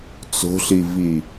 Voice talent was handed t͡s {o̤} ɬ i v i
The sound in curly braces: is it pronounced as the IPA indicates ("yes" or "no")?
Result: yes